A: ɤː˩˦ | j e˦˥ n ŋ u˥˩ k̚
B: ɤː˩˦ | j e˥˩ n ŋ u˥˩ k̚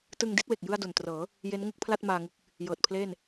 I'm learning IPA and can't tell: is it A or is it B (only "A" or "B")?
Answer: A